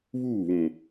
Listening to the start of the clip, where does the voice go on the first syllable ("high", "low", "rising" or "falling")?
falling